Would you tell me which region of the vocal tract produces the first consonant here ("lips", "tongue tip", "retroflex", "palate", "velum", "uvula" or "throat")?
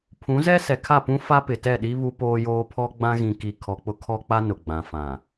lips